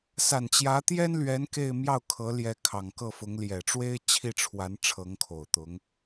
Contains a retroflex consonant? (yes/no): yes